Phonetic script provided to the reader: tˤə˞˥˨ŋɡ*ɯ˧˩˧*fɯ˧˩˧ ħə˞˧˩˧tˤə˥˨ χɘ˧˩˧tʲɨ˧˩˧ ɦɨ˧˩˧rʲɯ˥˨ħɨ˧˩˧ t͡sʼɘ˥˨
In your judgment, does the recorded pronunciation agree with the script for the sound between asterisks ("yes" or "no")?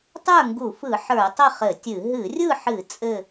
no